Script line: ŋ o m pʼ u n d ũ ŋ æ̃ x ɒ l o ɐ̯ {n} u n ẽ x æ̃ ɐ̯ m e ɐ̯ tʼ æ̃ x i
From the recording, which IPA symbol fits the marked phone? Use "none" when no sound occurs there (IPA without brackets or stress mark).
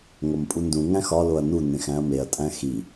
n